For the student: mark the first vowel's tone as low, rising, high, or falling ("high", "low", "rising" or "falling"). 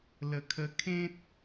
low